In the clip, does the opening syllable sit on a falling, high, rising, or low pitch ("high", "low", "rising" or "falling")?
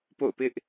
falling